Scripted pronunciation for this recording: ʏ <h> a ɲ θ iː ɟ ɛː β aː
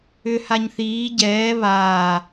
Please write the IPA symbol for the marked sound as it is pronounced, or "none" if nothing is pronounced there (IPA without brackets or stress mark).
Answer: h